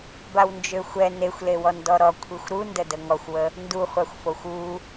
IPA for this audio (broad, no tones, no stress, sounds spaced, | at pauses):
b a w n d͡ʒ ø xʷ ɛ n e xʷ l e w ɔ n d ɔ ɾ ɔ kʷʰ i xʷ ɾ u n d ə d ə ŋ ɔ xʷ w ə | n d u χʷ a xʷ f o xʷ u